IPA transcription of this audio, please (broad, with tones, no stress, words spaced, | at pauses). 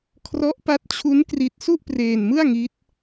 kʰrɔ˦˥ʔpa˦˥t̚t͡ɕʰu˦˥n kri˦˥t̚ su˥˩ʔpreː˧nmɯ˥˩a̯ŋi˦˥t̚